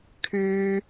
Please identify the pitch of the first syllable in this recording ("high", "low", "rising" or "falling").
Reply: high